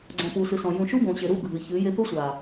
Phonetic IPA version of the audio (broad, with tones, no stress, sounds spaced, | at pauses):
ɡ͡ǀ ɔ̃˨ p u˨ s ɨ˨ s ɔ̃˨ j ũ˨ ʃ u˦ b õ˨ ɕ e˨ ɾ u˦˨ ɡʱ ɨ˨ ç ɨ˨˦ j e˦ p ɘ˦ sʷ a˨